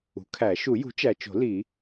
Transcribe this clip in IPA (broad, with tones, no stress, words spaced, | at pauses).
ṳ˩˥kʰæ˨˩˦ ʃu˨˩˦jṳ˩˥t͡ʃæ˨t͡ʃo̤˨˩˦ li˨˩˦